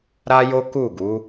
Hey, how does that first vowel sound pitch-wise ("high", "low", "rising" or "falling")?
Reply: high